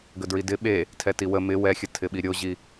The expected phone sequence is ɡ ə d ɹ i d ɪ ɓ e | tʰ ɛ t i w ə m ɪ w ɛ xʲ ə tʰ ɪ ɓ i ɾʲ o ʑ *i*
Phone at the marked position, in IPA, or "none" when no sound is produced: i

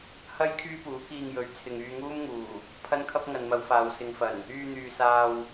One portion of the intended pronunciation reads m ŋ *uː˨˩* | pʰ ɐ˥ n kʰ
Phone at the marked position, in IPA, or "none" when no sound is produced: uː˨˩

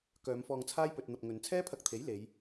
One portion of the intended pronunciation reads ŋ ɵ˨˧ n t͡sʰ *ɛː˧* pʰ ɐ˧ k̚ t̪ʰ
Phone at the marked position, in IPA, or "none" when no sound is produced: ɛː˥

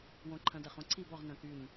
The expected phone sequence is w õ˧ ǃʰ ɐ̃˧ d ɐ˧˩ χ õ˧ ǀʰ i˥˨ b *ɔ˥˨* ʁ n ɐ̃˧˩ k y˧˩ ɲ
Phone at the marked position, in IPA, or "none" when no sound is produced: ɔ˥˨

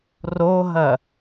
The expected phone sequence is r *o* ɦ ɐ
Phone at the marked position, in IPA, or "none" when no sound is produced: o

